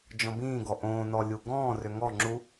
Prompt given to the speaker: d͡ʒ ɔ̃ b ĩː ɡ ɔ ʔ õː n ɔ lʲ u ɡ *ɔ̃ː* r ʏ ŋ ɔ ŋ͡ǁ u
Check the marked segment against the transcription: correct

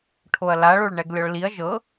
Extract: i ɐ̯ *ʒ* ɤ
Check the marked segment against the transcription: correct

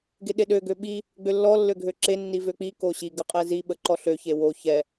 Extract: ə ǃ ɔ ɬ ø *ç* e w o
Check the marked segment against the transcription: correct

